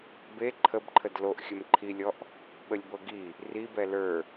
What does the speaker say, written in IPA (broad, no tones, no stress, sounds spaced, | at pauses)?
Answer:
b e ǃʰ ə b ǃʰ ə d l o ʔ xʲ ə m ǃʰ i lʲ ɔ ʔ | ɓ ə lʲ b ɤ ɡ i | r i b ɛ l ə˞